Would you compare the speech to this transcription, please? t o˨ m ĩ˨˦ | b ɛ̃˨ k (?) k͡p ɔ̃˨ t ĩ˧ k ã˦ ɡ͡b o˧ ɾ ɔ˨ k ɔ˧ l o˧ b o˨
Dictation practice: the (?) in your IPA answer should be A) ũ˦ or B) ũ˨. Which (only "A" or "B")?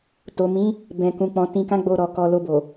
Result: B